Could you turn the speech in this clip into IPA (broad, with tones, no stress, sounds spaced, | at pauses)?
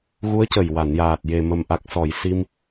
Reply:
ɣ u˧˥ ə̯ c ə˨˩ j w a˨˩˨ n j aː˨˩ t̚ j e˨˩ m ə˨˩ m ʔ a˨˩ k̚ s ɔ˨˩˨ j s i˧ m